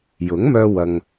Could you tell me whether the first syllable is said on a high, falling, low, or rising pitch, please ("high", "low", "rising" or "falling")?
rising